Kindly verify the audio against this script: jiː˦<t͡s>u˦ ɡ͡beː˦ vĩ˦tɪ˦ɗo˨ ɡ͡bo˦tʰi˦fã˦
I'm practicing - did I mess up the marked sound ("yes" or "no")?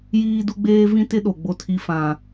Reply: yes